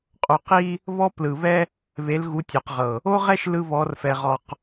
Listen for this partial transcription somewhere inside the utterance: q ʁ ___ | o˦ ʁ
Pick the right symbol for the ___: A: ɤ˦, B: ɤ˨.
B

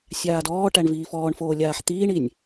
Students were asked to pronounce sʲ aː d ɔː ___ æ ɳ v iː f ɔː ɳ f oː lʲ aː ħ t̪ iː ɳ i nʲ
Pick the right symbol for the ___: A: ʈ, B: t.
A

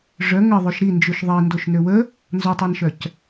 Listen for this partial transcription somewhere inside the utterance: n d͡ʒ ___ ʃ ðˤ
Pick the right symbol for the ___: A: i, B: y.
B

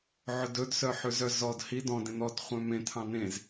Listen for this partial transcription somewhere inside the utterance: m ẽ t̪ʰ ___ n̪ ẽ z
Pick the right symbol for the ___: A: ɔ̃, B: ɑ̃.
B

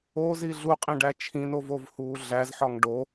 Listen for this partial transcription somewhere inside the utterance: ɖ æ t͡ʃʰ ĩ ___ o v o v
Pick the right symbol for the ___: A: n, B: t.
A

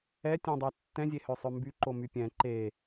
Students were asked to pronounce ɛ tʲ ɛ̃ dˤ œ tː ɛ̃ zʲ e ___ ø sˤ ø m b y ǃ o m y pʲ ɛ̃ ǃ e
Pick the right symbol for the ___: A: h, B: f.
A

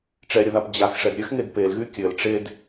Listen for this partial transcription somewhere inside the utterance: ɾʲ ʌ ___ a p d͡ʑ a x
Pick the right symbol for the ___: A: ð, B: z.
A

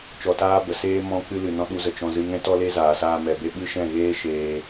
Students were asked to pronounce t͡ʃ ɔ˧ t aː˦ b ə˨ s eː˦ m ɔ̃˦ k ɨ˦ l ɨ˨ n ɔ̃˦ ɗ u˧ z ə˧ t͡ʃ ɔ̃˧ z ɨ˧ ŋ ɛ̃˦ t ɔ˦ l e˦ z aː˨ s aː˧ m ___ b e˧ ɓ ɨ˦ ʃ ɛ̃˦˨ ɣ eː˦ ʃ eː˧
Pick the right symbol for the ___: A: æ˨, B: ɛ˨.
B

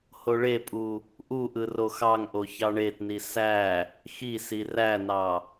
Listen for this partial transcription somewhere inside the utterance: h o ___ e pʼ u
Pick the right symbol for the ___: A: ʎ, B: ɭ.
B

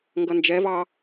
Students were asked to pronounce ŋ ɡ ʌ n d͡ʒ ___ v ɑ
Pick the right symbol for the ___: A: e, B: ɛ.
B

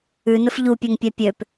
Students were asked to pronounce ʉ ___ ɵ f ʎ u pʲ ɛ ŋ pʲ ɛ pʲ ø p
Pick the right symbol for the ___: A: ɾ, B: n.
B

